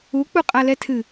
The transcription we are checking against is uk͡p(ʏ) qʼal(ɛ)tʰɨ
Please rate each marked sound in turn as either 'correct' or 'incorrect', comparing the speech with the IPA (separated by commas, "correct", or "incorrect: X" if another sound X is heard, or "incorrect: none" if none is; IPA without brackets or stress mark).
incorrect: u, correct